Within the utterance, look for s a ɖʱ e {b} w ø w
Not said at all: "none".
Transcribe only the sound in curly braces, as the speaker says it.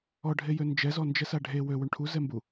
none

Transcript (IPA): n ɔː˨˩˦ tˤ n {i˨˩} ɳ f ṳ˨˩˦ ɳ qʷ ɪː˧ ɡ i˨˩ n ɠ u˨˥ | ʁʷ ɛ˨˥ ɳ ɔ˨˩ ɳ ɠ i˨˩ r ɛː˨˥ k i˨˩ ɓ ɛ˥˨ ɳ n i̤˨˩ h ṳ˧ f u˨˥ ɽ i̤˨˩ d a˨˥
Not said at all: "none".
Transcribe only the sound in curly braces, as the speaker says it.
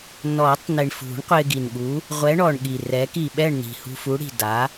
i˨˩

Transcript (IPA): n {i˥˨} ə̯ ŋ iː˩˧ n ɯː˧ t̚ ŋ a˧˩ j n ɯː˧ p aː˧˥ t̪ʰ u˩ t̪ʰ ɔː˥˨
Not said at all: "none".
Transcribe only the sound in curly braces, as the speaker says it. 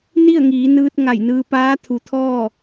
i˥˨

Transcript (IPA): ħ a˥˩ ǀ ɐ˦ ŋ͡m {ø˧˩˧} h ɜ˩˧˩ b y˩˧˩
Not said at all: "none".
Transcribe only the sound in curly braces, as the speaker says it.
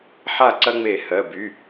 e˧˩˧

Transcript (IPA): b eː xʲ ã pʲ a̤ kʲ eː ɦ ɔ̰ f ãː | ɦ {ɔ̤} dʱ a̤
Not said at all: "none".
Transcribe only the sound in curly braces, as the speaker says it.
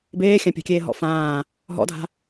ɔ̰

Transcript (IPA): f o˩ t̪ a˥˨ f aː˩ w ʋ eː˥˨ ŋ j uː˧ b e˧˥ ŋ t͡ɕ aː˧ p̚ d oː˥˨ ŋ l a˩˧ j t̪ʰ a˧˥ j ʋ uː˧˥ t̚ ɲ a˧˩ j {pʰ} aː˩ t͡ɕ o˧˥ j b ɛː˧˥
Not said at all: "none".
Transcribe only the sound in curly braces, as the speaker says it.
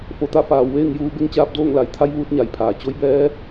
pʰ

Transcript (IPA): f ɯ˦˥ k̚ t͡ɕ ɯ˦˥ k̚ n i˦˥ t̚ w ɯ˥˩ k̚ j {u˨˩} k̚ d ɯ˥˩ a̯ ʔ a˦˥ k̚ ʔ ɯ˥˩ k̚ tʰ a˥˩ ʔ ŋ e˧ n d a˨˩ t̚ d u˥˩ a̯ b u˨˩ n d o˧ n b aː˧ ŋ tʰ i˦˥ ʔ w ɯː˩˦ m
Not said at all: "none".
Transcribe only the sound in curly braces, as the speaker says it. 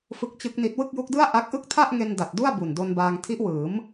u˦˥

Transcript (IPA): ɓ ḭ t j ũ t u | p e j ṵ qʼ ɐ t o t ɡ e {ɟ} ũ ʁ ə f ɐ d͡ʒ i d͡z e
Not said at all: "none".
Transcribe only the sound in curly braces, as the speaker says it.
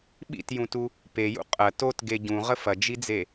ɟ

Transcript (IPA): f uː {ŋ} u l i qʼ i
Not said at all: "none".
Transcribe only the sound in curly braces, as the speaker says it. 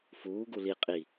ɡ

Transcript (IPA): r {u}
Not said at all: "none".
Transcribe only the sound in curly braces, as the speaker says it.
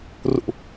ṵ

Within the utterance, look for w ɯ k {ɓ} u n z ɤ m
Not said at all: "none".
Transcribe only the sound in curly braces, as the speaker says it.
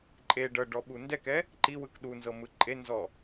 ɗ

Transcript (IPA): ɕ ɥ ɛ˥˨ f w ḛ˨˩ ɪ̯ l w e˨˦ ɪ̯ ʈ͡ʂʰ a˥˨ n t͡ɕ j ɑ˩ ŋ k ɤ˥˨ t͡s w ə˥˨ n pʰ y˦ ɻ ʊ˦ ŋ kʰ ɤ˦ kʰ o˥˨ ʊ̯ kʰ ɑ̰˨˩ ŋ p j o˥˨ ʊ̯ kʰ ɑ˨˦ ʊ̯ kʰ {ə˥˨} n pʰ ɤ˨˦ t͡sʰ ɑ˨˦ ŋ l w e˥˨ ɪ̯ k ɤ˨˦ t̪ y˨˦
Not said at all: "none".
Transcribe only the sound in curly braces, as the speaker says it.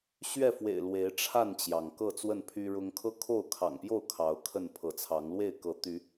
ə˥˨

